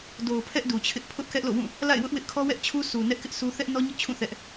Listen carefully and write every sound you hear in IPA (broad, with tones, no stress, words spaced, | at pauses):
do˨ʊ̯pʰɛ˦ʔ du˨t͡ɕʰɪ˦ʔ pʰʊ˦ʔkɛ˦ʔlo̰˦˨wũ˦˨ | la̰˦˨ɪ̯wʊ˦ʔ wɪ˦ʔkʰɔ˦ wɛ˦ʔt͡ɕʰu˦ su˨ nɛ˦ʔkɪ˦ʔsu˦ θɛ˦ʔnɔ˦ ɲʊ˦ʔt͡ɕʰũ˦˨ θɛ˦ʔ